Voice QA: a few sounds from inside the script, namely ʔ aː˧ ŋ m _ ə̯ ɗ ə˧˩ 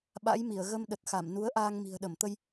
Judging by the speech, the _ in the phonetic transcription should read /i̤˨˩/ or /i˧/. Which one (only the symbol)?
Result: i̤˨˩